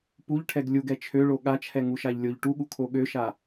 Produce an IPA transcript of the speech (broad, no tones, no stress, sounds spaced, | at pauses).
p u ʎ ʈʰ ɛ ɡ lʲ u ɡ ɛ t͡ʃʰ ø ɭ o ɠ a t͡ʃʰ ɛ ŋ u ʃ a ʎ lʲ o ʎ ʈ u ɠ u kʰ o ɠ ø ʃ a